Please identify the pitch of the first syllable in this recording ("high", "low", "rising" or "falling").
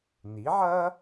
rising